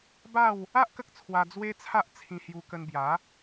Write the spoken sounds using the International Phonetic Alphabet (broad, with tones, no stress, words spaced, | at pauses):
ba˥˧w | a˦ʔ kə˦k̚t͡sʰwa˧ d͡zwe˦t͡sʰa˦ʔ t͡sʰĩ˧hju˧kə˧nbja˨˦